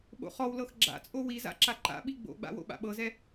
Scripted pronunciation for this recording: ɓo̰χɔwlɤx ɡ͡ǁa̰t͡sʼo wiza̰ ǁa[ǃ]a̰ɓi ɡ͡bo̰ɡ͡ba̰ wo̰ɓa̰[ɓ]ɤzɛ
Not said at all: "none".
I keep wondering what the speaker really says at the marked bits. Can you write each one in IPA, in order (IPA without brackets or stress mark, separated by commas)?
ǃ, ɓ